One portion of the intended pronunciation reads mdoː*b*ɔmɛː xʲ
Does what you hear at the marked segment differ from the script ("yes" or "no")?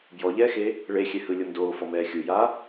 yes